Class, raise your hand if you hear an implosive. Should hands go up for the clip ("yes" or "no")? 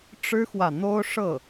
no